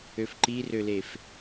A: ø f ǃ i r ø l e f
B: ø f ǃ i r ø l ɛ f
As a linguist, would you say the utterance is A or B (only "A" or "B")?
A